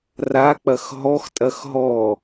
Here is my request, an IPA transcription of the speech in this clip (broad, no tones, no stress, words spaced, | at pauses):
rak͡pɐx ɦɔxtʼɐx ɦɔ